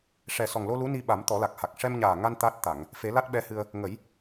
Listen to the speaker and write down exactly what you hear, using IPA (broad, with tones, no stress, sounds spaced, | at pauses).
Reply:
ʂ ɛ˨˩ s ɔ˨˩ ŋ l o˧ l u˧˥ n i˧ ɓ a˨˩˦ m t̪ ɔ˨˩˦ l a˨˩ k̚ h a˨˩ k̚ ʂ ɛ˧ m ɲ aː˨˩ ŋ a˧ n t̪ a˦˥ t̚ t̪ a˨˩˨ ŋ | f e˨˩˦ l a˦˥ t̚ ɓ ɛ˧˥ h ɨ˧ ə̯ | ŋ ə˨˩˦ j